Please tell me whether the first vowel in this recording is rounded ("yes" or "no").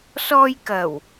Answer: yes